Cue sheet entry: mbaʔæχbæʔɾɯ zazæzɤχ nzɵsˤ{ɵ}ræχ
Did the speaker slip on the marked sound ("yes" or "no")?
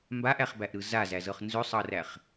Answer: yes